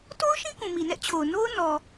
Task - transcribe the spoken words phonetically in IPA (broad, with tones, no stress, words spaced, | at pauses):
to˦ʊ̯ʃĩ˦ kũ˨mi˨nɛ˦ʔt͡ɕʰo˨ʊ̯ no˦ʊ̯nɔ˨